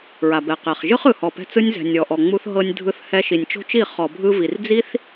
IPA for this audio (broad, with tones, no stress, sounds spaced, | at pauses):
ɹ a˨ b ɛ˨ q ɛ˨ χ ʒ ɯ˦ χ ɯ˨ h ɔ˨ p ɛ̤˧ t͡s ɯ˧ nʲ z ɛ̤˨ nʲ ɔ˨ ʔ ɔ˨ ŋ͡m u˧ θ ɦ ɤ˧ nʲ dʱ ɯ˧ θ h ɛ˧ ʃ i˨ nʲ t͡ʃ o̤˦ t͡ʃ i˦˨ χ ɔ˨ bʱ ɯ˧ v i˨ r d͡z i˦ θ